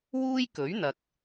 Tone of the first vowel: high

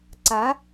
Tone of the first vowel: rising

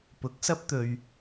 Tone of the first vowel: rising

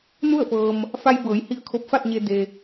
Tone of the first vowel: falling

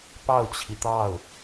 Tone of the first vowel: falling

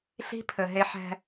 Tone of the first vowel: high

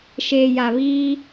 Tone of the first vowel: low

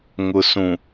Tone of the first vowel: low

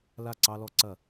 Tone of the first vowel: falling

